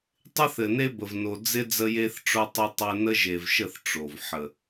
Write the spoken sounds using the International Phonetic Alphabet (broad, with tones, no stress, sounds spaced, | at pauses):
tˤ ɪ˦ θ ɘ˨ n e˦ b ə˨ v n o˨ d͡z ɪ˦ d͡z ə˦ j e˦ θ ʈ͡ʂ o˦ tˤ ə˦ tˤ ɘ˦ n ə˦ ʒ e˨ v ʃ ə˦˨ θ ʈ͡ʂ o˨ v ħ ə˨